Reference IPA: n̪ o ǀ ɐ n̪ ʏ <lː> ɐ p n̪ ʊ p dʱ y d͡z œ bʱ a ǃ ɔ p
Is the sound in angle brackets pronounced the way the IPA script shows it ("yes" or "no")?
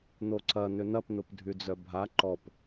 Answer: no